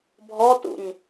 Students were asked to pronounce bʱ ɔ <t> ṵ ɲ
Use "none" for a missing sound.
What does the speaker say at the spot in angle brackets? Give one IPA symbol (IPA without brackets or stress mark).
t